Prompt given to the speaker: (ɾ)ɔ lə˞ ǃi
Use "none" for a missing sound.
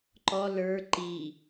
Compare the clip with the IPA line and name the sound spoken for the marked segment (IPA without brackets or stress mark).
ǃ